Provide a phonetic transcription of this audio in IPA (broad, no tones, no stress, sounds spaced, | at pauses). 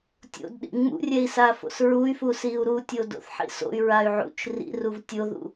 tʲ o̰ d ɗ ḭ ŋ͡m ṵ rʲ ɛ i̯ s a f o̰ s ɹ u y̯ f u s i u̯ ɾ u tʲ o d o̰ θ ħ ḭ s o̰ y̯ ɹ a y̯ ʕ ṵ t͡ʃ r ḭ r u v tʲ o ð ṵ